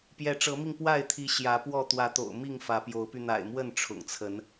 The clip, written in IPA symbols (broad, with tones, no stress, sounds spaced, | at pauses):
p j ɛ˨˦ ʈ͡ʂ ɤ˨˦ m i˧ ŋ p w a˥˨ ɪ̯ t̪ʰ i˨˦ ɕ j ä˨˦ p w ɔ˥˨ t̪ w ä˨˦ t̪ o̰˨˩ ʊ̯ m i˥˨ ŋ f ä˨˦ p j o˨˦ ʊ̯ p y˧ n̪ a̰˨˩ ɪ̯ m w ə˥˨ n ʈ͡ʂʰ ʊ̰˨˩ ŋ t͡sʰ ə˨˦ n